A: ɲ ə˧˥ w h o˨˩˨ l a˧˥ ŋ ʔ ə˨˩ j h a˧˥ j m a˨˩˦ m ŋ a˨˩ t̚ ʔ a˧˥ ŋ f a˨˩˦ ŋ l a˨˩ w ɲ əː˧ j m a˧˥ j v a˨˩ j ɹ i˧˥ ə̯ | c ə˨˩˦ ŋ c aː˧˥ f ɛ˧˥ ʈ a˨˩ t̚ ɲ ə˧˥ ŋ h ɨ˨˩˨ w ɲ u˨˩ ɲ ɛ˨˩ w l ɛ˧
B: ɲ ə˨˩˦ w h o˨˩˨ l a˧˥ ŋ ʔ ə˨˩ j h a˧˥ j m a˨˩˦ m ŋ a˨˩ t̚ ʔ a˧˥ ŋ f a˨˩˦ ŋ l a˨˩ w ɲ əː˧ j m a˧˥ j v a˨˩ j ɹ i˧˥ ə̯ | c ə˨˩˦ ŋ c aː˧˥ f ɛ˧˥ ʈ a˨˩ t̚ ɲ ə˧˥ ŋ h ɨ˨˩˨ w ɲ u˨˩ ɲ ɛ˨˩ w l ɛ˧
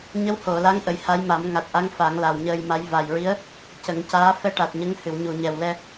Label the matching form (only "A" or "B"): A